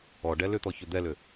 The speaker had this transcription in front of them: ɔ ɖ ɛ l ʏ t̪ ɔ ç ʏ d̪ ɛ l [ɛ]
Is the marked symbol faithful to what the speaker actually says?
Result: no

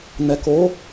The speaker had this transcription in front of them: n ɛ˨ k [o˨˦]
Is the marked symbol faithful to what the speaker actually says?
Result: yes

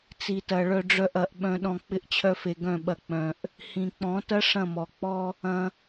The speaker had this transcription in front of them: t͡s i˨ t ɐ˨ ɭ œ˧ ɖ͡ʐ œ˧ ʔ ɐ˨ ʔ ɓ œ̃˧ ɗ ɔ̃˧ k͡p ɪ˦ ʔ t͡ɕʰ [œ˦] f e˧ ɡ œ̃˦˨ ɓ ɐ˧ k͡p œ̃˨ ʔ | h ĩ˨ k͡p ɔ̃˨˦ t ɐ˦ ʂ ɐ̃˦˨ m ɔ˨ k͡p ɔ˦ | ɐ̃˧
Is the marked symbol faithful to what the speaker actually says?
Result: yes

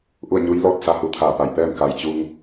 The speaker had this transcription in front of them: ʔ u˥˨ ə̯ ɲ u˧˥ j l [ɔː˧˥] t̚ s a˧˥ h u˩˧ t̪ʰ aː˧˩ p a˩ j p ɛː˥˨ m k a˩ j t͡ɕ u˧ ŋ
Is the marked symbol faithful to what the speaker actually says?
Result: no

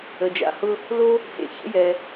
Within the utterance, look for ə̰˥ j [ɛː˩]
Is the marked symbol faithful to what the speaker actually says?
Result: no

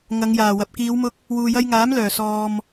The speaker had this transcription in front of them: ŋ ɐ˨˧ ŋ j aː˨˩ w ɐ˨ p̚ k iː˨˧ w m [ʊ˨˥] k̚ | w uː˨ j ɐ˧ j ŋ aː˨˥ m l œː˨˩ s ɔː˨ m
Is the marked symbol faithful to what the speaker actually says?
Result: no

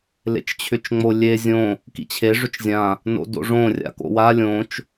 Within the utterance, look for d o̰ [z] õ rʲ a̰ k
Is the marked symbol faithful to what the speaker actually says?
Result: no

